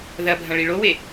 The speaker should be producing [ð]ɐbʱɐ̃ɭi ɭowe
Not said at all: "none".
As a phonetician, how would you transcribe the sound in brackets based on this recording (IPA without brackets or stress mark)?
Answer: ð